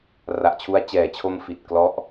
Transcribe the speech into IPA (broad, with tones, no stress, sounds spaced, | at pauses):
r a˨˩ ʔ t͡ɕʰ u˧ a̯ t͡ɕ ɛː˨˩ t͡ɕʰ o˧ m f i˨˩ t̚ k l ɔ˦˥ ʔ